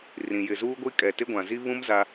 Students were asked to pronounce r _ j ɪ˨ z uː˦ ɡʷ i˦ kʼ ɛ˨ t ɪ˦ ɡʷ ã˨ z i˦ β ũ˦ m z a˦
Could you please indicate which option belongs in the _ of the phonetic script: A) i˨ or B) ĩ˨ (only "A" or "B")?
B